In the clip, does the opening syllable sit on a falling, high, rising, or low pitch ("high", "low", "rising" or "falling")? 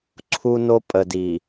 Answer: high